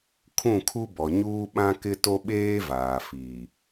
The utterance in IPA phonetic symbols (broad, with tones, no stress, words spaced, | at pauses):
kʰũ˦˨kʰu˦ bɔ˨ɲuː˦ɓã˦ kɪ˦to˦ɓeː˦ vaː˨fiː˨